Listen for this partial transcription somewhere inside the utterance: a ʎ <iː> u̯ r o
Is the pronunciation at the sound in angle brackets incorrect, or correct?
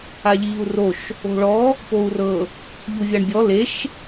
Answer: correct